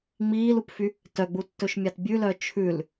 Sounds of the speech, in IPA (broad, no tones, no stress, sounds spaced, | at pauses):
ŋ͡m iː l u p f y | t œ ɡ͡b u tː ɵ ʃ mʲ ɑ t bʲ ʉ l œ t͡ʃʰ ʉ l